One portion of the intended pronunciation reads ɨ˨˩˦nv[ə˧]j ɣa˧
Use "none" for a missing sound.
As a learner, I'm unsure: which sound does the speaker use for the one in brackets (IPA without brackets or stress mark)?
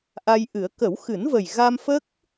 ə˨˩